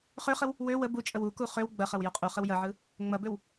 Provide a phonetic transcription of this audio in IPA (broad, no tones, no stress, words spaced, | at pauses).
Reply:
χøχəw | wø wə but͡ʃʼəw uku χøw ɡ͡bɐχɐw joqʼuχəw jɐʕɯ | ŋ͡mɐbøw